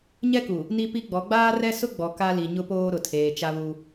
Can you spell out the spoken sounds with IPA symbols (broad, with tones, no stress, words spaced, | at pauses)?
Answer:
ɲɛ˦ku˨ | ni˦pi˦ɡ͡bɔ˨˦ ɡ͡baː˦rɛ˦ sʊ˦ɡ͡bɔ˨ ka˦li˨ɲʊ˦poː˦ ɾʊ˨tʰeː˨t͡ʃa˦βu˦